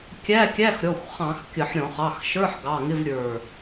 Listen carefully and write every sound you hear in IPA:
kʲ æ˧˥˧ kʲ æ˧˥˧ x ɾʲ ɔ˩˧˩ xʷ χ ɑ̃˧˩˧ x kʲ ə˧˩˧ ħ ɾʲ ɔ̃˧˩˧ χ ɑ˩˧˩ x ʃ ə˞˧˥˧ ħ ɡ ɑ˩˧˩ ŋ ɪ˧˥˧ v ɾʲ ə˞˧˩

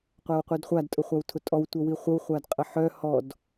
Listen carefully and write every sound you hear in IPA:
qʷ æ w qʷ i d χʷ a d tʼ ʊ χʷ a w tʰ ʊ tʼ ɔ w tʷ œ w i χʷ ə w χʷ a d qʼ ə ħ œ h ɔ d

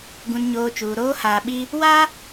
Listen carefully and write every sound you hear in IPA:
ɡ ũ˨ n ɲ oː˨ t͡ʃ uː˨ ɾ oː˦ h aː˨ ɓ i˦ | w aː˦

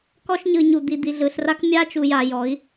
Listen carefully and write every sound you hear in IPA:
k ɔ˦ ʃ ɲ ɯ˨ ɲ u˨ d̪ i˨ d̪ i˨ ɮ ɯ˨ ɬ r a˦ k mʲ a˦ t͡ʃ u˨ j a˨ j ɔ˨˦ i̯

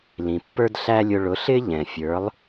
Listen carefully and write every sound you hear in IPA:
l ĩ˩ pː ə˞˥ d ɬ æ˥ lʲ ʊ˧ ɭ ʊ˩˥ ɬ ɪ˥ ʎ ɛ̃˩ fʲ ə˞˩˥ lˠ

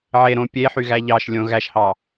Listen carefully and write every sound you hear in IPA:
ʕ e ɾ õ pʲ e ħ y ɣ æ ʎ ɑ ʃ lʲ õ ɣ æ ʃ h ɑ

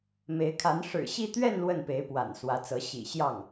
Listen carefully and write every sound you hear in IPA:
m e˧˥ ɪ̯ kʰ a˧˥ n ʂ ɻ̩˨˩ ɕ i˥˧ t̪ ɥ ɛ˥˧ n l w ə˥˩ n p e˧˥ ɪ̯ p w a̰˨˩ n s w ä˧˥ t͡s ɤ˧˥ ɕ ḭ˨˩ ɕ j ɑ˥˩ ŋ

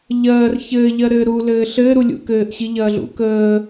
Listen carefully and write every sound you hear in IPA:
ʎ ɜː r ç ɘː ʎ ɜ ɾ ɘː ɾ u l ɘː ɬ ɘː ɾ u lʲ ṵ k ɘː ʔ ɕ i ʎ ɐː ɮ ṵ k əː

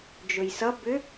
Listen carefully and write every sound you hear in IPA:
d͡ʒ ɵ j s ʌ b ʏ

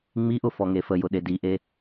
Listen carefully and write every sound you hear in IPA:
ŋ͡m i ʔ ʊ f ɔ ŋ e f ə j ʊ ɗ e d i ʔ e

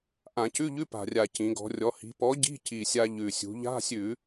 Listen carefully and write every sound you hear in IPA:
ʔ ã˧˩˧ c ʉ˧˥˧ ʎ ʉ˧˥˧ p a̤˨˩ rʲ a˨˩ c ĩ˩˧ ɡ ɔ̤˩˧ rʲ ɔ˩˧ h i̤˩˧ p ɔ˨˥ ɟ i̤˧˥˧ c i˨˩ sʲ a˧ ʎ ʉ˨˩ sʲ ṳ˩˧ ʎ a̤˧˥˧ sʲ ʉ˧˩˧

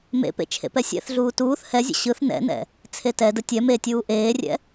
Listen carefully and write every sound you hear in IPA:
m ḛ p ḛ t͡ʃʰ ḛ p ɛ sʲ ɛ̰ θ ɮ uː t uː θ h ɛ zʲ ə̰ ɕ ɯ θ n ɛ̰ n ɛ̰ | t͡sʰ e t ɛ d ə tʲ ɛ m e tʲ uː ʔ eː rʲ ɛ̰

